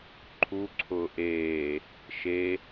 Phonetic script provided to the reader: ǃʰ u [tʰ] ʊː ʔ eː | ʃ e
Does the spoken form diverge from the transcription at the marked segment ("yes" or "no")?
yes